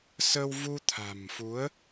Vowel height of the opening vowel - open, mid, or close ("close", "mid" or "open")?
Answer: mid